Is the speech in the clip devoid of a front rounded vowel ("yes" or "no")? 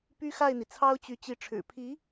no